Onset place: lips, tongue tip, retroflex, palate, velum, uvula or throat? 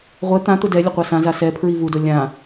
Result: uvula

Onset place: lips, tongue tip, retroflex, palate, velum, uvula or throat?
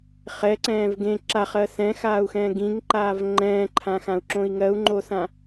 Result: uvula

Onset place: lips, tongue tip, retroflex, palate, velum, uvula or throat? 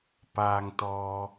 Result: lips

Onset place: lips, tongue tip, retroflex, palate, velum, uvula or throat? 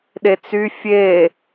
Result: tongue tip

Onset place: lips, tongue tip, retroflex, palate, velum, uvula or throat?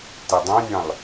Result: tongue tip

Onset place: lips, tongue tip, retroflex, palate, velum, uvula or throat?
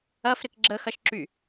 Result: lips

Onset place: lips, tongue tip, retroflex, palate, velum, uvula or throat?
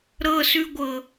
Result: tongue tip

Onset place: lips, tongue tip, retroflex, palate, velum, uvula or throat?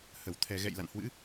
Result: throat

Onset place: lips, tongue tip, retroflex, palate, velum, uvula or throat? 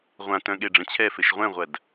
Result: uvula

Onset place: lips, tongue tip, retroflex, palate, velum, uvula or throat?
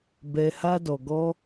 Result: lips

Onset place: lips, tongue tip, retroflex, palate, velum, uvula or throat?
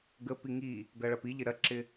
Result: velum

